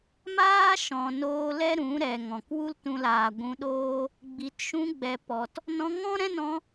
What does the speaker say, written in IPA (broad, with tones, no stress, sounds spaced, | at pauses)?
m aː˦ ʃ ɔ̃˨ n oː˧ l ɛ˦ ɾ ũ˨˦ ɾ ɛ˨ ŋ ɔ̃˨ k w u˦ l t ũ˧ l aː˨ ɡʷ ũ˧ ɗ oː˦ | ɡ͡b i˨ t ʃ ũ˧ ɡ͡b ɛ˨ p ɔ˨ t | n ɔ̃˧ ŋ ɔ̃˦ ɾ ɛ̃˦ n ɔ̃˧